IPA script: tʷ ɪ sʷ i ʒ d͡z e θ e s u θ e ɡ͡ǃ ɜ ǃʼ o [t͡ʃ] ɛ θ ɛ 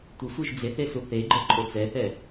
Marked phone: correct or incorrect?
incorrect: t͡s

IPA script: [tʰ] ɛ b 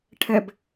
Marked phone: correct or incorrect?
incorrect: ʈʰ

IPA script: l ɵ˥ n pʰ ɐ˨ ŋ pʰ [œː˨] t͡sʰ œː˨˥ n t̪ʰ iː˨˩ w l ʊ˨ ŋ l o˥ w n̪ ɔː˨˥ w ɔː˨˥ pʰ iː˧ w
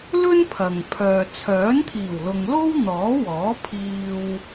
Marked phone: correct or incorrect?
correct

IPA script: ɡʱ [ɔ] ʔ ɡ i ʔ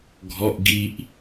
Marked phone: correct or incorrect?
correct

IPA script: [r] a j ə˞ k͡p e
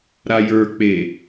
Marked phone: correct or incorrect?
incorrect: ɾ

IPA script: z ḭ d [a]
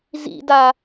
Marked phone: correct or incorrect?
correct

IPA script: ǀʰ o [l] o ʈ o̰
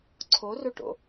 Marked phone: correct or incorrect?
incorrect: r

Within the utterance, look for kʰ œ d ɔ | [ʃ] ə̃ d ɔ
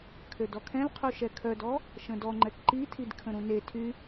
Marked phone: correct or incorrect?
correct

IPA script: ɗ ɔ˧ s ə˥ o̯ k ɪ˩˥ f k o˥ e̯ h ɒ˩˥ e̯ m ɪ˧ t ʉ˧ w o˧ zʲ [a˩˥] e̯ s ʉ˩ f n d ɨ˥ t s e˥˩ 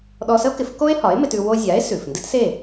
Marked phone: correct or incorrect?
correct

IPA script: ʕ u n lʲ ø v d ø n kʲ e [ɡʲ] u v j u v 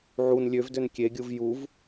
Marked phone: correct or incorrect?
correct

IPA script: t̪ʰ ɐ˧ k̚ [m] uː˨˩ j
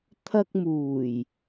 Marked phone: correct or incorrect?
correct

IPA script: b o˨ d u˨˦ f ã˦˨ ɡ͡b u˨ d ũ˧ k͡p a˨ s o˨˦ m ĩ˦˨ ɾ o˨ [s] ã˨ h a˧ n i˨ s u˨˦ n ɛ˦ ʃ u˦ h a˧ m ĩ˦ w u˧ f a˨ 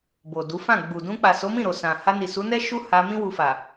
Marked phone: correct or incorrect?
correct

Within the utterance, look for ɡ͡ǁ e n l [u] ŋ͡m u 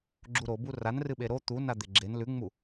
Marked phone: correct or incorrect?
incorrect: ʉ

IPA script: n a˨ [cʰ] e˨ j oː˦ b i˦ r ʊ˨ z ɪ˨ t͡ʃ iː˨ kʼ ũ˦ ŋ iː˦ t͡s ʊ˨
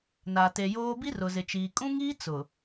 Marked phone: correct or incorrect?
incorrect: t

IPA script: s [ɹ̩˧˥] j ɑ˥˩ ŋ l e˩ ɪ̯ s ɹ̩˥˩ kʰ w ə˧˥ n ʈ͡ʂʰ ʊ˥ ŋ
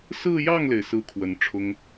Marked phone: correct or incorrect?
incorrect: ɹ̩˥˧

